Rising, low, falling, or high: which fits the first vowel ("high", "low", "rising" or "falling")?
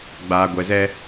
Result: low